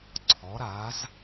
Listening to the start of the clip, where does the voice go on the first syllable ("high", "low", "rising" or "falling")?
rising